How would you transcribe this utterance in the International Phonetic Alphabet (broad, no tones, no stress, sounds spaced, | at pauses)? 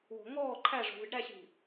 w o̤ ŋ ɔː ǃʰ æ ʐ o̤ v ɨ ɖ ɾ æ ɕ i̤